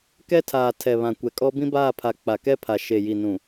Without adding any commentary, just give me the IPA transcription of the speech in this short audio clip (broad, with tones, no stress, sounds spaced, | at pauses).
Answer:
k ɛ˦ tʰ aː˨ tʰ ɛ˨ β ã˨ kʷ ɛ˨ kʼ ɔ˦ b ĩ˦ b aː˦˨ pʰ a˨ k͡p a˨ k ɛ˦ pʰ a˨ ʃ e˨ j i˨ n ũ˨